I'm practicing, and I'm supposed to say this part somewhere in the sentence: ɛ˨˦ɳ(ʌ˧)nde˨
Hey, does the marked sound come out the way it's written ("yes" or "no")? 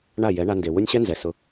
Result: no